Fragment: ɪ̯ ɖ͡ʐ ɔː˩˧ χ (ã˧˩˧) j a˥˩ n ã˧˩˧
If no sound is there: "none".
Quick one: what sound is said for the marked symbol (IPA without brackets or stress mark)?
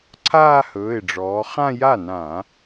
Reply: ã˥˧